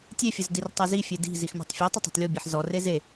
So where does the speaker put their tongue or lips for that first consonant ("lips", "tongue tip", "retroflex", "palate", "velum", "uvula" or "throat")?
tongue tip